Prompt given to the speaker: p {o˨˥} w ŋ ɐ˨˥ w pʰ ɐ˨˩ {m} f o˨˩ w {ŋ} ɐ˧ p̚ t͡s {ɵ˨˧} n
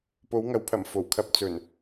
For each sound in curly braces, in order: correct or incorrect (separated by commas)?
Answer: correct, correct, incorrect, incorrect